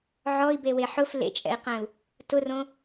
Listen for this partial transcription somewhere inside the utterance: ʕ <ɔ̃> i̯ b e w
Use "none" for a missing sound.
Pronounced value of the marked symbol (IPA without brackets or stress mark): ɔ